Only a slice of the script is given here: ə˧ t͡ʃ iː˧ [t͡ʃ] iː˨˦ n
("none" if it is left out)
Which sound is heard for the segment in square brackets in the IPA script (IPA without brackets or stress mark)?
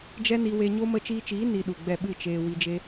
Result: t͡ʃ